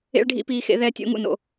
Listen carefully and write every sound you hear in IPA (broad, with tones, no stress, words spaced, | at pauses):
ḛ˥ɭɖʱḭ˥piː˧˥xḛ˧˥ ðɛ˧˥tʲo̰˧˥ ŋṵ˥no̰˥